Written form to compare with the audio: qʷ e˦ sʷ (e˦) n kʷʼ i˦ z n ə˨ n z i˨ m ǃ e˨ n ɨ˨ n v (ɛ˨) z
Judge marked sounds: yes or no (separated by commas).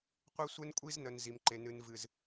yes, no